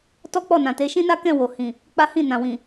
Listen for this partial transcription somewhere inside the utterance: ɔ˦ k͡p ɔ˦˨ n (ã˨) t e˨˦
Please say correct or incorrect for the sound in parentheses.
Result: correct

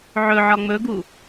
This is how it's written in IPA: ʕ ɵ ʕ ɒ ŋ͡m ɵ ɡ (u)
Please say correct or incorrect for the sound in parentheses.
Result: correct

